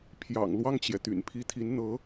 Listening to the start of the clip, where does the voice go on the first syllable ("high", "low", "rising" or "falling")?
low